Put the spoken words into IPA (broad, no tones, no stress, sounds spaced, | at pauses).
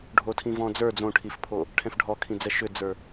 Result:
ɖʱ o tʰ ĩ v ɔ̃ d͡z ə˞ d͡z õ ʈʰ i f pʰ o | ʈʰ ɛ̃ f ɖʱ ɔ kʰ ĩ d͡z ɛ ʃ ʏ d͡z ə˞